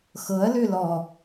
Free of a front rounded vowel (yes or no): no